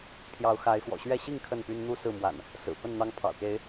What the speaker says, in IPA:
pʰ j ɑ˨˦ ʊ̯ x a˨˦ ɪ̯ x w ɔ̰˨˩ ɕ ɥ ɛ˥˨ ɕ i˥˨ ŋ kʰ ə˥˨ n p y˦ n n̪ u˥˨ s ɹ̩˥˨ m w a̰˨˩ n | s ɹ̩˨˩ p ə˥˨ n n̪ ɑ˦ ŋ pʰ ɑ̰˨˩ ʊ̯ k e˨˦ ɪ̯

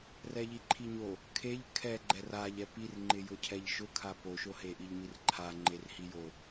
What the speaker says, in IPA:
r ɛ ʎ i ǃʰ i ɲ o | kʰ e ʎ kʰ ɛ ɡ͡ǃ ɛ r a ʎ ɛ p i r ŋ͡ǃ ɪ j ʊ cʰ ɛ ʎ ʃ ʊ kʰ a p o ʃ o h e ʔ i ʎ m i r ǃʰ a ŋ͡ǃ e r h i j o

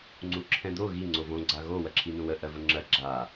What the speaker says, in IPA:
ŋ͡ǀ u ǁʰ ɛ̃ d̪ o ɣ i ŋ͡ǀ o v õ ɡ͡ǀ a ɣ o w ɜ ǁʰ i n ũ w ə ʔ ɜ v ə ŋ͡ǁ ɜ ɡ͡ǁ a

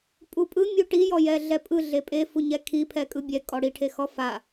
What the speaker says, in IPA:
pʼ u pʼ ɯ mʲ u ʈ i j ɔ j ɛ ɮ ɛ pʼ ɯ ɮ e pʼ e f u ɲ ɛ kʰ i pʰ ɛ kʼ ɯ bʲ ɛ kʼ ɔ ɽ i ʈʰ e x ɔ f a

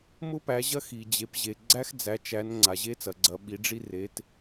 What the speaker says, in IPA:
m ʊ˦ p æ˩˧ ʑ ɐ˦ x i˩ d͡ʑ e˩˧ p ʑ e˩ ɡ͡ǀ æ˦ x d͡z æ˩˧ t͡ʃ æ˩˧ n ŋ͡ǀ a˩ ʑ e˦ t͡s ɐ˩ ɡ͡ǀ ɐ˩˧ ɓ i˩˧ ɖ͡ʐ i˦ r e˩˧ t

